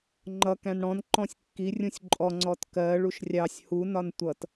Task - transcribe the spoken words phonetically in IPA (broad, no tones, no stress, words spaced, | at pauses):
ŋ͡ǃʌ kæ̃nɽɔ̃n ǃɔ̃sʲkːi rʲũsʲǃʼɔ ŋ͡ǀɔtkɜ ɭuʃrʲɑsʲ hu nɒntʷʌt